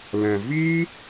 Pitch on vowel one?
low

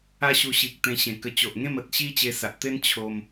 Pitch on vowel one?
high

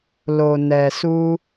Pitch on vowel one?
low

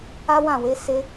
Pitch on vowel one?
high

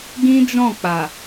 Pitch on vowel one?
high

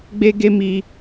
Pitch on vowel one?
high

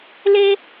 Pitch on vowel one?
high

